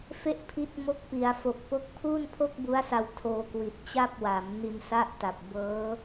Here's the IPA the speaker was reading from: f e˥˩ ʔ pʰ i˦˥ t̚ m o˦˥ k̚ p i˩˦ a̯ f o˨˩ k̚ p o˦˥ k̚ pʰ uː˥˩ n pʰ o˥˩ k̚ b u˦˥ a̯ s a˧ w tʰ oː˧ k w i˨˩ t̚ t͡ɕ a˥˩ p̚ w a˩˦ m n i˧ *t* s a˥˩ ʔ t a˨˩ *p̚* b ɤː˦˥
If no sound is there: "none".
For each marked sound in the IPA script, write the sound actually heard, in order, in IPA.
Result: n, p̚

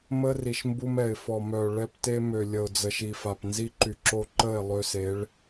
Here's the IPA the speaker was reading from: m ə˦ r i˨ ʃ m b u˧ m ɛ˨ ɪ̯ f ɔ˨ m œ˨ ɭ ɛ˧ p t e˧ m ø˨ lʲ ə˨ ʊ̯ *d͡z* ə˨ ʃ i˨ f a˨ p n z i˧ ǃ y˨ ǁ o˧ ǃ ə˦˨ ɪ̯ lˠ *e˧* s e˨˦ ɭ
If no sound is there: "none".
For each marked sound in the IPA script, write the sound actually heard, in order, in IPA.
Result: d͡z, ø˧

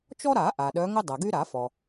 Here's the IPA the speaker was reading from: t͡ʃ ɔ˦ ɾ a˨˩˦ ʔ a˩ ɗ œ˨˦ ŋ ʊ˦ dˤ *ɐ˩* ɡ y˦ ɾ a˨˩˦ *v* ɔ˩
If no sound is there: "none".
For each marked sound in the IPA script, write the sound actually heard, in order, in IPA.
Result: ɐ˩, f

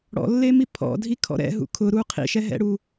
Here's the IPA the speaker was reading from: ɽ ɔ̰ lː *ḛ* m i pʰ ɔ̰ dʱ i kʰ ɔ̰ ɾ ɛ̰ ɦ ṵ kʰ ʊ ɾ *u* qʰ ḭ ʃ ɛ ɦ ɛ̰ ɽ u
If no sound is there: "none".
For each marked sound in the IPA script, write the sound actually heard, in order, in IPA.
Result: e, u

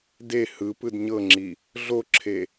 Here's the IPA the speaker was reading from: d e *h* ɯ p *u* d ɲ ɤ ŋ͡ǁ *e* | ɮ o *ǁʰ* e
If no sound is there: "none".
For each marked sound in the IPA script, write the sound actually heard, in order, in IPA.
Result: h, ɯ, i, ǁʰ

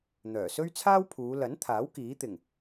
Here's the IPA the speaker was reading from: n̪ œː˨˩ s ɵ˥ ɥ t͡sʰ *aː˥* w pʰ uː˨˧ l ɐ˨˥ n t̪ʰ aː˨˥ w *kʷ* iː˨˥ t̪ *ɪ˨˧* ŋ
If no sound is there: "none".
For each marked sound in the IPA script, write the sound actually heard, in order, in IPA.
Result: aː˥, k, ɪ˨˩

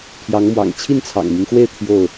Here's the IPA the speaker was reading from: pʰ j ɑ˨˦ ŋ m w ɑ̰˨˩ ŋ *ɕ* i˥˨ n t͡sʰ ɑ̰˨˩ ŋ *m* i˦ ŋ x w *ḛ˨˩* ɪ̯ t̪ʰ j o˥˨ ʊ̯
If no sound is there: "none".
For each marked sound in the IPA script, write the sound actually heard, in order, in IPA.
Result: t͡ɕʰ, m, e˥˨

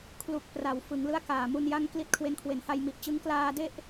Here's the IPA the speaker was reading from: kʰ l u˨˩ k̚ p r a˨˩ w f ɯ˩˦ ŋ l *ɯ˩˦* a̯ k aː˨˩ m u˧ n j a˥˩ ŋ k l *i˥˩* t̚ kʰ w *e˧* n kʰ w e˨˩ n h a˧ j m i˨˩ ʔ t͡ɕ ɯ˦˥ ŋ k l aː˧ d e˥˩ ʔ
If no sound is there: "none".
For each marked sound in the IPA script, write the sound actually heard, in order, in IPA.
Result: ɯ˦˥, i˦˥, e˧

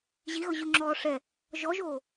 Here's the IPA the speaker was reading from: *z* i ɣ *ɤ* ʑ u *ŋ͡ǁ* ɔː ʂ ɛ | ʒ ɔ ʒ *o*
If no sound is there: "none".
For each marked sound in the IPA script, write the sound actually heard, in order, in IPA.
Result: ʑ, ɤ, ŋ͡ǁ, oː

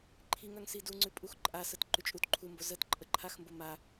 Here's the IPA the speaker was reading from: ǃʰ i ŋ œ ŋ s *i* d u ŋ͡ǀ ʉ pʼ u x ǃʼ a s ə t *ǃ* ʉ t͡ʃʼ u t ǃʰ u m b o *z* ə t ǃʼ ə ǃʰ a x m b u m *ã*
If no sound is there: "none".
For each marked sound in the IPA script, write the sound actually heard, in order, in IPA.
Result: i, ǃ, z, a

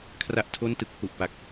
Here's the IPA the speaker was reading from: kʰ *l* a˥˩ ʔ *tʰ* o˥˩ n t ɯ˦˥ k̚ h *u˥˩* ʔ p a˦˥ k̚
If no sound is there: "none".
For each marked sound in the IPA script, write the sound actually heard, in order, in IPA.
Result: r, tʰ, u˨˩

